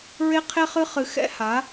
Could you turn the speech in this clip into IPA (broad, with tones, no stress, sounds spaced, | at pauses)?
ɹ e˦ qʰ e˦ χ ɨ˦ χ ɨ˧ x ɛ̰˦ h a˨˦